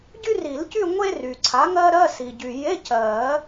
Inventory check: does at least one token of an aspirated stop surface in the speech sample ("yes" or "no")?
yes